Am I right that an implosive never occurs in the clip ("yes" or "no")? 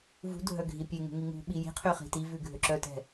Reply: no